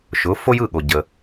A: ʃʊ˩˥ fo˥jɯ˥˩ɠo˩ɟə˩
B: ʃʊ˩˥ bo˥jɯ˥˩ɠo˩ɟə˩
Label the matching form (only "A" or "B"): A